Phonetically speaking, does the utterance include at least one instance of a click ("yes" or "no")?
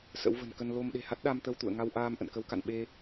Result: no